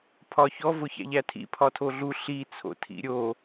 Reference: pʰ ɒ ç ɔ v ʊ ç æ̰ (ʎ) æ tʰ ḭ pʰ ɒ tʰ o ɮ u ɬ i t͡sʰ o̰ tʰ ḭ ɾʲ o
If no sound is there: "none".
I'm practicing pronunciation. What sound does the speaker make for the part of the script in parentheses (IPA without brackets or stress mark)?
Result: ʎ